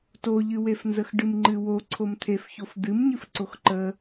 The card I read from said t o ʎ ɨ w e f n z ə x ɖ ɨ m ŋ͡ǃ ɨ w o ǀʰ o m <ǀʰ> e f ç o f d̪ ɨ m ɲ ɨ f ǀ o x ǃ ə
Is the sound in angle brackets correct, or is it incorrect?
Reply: incorrect